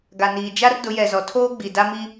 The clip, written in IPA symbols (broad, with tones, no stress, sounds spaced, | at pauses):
ɡ a˨ n iː˨ d͡ʒ a˦ r d ʊ˨˦ j ɛ˨ z ɔ˨ tʰ oː˦ ɡ͡b i˨ d a˦ m i˦